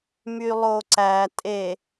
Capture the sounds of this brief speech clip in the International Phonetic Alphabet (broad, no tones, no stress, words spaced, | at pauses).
mylˠoǀæ tʼe